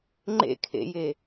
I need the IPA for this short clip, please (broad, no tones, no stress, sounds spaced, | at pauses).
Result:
ŋ͡ǃ ḛ kʰ ḛ j e